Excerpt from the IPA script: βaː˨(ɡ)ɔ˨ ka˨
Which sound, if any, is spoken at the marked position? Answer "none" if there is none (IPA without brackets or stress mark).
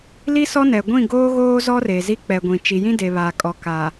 kʼ